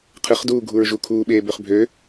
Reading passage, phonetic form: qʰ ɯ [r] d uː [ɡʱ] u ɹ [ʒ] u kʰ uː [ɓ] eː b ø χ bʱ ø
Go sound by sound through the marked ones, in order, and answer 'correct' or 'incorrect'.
incorrect: χ, correct, correct, correct

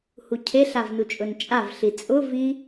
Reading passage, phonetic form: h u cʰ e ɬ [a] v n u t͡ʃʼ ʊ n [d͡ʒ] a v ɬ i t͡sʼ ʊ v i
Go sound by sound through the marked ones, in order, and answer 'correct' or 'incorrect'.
correct, incorrect: t͡ʃʼ

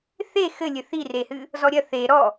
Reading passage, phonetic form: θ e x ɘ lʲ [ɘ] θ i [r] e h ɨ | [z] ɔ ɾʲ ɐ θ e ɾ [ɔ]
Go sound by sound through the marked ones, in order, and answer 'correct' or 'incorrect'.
correct, correct, correct, correct

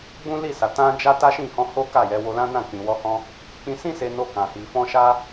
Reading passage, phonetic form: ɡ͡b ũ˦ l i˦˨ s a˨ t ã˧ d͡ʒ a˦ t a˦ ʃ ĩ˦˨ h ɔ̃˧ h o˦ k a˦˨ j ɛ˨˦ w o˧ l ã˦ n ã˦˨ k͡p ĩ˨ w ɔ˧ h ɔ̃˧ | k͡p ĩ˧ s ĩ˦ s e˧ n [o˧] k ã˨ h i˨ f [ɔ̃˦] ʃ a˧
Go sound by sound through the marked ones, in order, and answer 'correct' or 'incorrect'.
correct, incorrect: ɔ̃˧

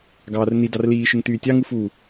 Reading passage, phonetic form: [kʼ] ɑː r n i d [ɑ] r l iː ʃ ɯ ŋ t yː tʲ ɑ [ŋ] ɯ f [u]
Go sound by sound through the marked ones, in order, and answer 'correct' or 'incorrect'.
incorrect: ɡ, correct, correct, correct

